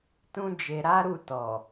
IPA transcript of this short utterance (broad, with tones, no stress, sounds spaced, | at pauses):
t ũ˦ d͡ʒ e˧ ɾ a˦ ɾ u˦˨ t ɔ˨